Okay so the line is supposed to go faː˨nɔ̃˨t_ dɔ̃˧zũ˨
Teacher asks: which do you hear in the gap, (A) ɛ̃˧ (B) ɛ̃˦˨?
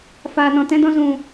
A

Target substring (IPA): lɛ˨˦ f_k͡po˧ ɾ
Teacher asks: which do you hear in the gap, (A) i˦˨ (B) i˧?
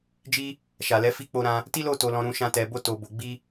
A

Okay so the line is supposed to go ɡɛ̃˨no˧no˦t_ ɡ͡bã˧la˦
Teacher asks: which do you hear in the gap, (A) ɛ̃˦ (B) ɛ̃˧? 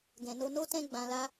A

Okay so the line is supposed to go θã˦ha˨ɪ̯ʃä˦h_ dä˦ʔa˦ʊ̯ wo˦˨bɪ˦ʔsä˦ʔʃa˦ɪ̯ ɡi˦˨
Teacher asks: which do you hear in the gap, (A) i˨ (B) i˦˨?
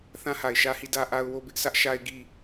B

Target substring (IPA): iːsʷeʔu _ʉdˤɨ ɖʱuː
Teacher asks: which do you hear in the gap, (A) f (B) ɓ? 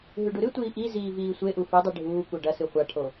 A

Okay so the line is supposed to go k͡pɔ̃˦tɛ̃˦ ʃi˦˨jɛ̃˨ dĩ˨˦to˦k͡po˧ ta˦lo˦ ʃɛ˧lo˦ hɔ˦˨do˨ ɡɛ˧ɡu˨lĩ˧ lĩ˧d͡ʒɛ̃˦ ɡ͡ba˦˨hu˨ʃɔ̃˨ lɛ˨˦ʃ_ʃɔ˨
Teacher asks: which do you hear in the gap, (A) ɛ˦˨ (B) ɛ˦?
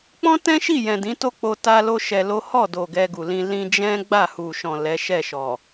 A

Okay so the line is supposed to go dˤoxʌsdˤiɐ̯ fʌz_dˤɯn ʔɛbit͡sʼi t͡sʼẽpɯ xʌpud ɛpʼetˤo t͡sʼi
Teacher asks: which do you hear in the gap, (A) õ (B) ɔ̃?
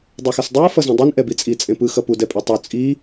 A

